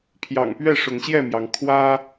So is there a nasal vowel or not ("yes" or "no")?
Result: no